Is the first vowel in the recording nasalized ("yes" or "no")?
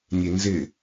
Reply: no